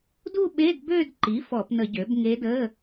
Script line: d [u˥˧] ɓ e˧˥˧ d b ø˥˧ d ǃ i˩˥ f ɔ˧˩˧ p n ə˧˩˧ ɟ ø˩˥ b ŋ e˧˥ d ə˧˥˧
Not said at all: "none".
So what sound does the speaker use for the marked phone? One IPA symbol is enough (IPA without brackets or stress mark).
u˥˧